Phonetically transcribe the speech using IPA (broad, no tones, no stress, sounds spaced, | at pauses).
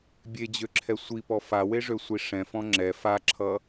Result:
bʲ e d͡ʑ ø ǁʰ ɛ sʷ i p ɔ f a w e ʐ ø sʷ i ʂ ɛ̃ f ɔ̃ ŋ͡ǁ ɛ f a ǁʰ ʌ